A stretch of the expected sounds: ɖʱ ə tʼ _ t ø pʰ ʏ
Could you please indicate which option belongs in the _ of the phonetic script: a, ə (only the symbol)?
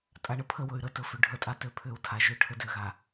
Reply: a